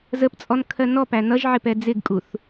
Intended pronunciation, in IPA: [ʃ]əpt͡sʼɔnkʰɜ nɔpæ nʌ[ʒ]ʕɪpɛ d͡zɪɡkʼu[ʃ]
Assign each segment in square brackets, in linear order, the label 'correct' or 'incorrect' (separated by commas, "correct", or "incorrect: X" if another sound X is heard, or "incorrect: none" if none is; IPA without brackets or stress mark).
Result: incorrect: z, correct, incorrect: θ